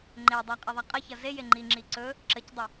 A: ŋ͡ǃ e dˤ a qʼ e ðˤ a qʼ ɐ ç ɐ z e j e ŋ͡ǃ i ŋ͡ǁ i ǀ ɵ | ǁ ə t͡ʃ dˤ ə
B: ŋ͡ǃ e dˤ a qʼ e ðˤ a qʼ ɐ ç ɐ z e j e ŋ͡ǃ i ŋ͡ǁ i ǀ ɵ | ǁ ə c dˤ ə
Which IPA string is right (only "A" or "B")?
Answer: B